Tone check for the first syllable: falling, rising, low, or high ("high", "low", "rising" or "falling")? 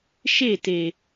falling